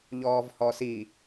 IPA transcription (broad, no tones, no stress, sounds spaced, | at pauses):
ʎ ɔː v h ɔ s i